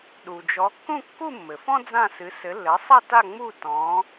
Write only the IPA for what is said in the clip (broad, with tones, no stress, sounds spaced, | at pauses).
ɗ u˩ d͡ʒ ɔ˨˦ kː ũ˥˧ kː u˥˧ mː ɘ˩ f ɔ̃˥ d͡z ã˥˧ s ɨ˨˦ s ɘ˨˦ lː ɘ˨˦ sˤ ɐ˥˧ t a˥˧ ŋ͡m u˥˧ t ɔ̃˨˦